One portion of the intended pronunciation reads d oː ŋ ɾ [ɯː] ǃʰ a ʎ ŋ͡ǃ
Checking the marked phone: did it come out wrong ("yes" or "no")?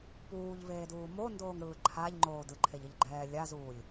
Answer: no